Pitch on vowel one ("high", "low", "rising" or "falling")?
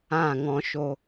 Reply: falling